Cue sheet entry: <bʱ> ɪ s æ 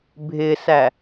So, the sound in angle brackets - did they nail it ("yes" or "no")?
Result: yes